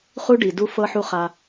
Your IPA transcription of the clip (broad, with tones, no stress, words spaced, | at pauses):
χu˦ɖi˨ du˦ fɤ˧ħu˧ χa˧